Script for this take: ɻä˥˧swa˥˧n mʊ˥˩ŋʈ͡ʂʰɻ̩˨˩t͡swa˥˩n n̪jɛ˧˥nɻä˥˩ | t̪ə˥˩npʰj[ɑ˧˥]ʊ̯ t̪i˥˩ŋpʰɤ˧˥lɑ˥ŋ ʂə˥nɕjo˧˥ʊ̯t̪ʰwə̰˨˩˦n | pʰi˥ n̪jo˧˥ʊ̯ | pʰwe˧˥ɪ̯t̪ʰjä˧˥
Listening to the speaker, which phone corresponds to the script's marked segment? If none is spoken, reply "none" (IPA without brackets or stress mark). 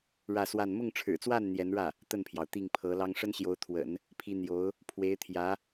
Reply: ɑ˩